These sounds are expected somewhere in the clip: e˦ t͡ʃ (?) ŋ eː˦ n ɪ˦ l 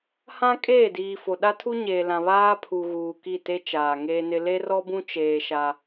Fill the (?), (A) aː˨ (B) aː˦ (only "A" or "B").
A